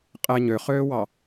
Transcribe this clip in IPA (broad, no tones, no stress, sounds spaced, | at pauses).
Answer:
qʼ ɛ ɲ ø χ øː w ɑ